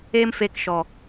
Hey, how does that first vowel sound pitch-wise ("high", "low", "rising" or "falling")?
high